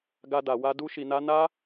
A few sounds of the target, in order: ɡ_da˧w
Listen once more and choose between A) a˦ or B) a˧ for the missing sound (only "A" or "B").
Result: A